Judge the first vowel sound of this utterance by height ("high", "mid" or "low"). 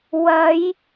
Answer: low